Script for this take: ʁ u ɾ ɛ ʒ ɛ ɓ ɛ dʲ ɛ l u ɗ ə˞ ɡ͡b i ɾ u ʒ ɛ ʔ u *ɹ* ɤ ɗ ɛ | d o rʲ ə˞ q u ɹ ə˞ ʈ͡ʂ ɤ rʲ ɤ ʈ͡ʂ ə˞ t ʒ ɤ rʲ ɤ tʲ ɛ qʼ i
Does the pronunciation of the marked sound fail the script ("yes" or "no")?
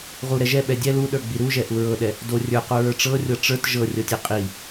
no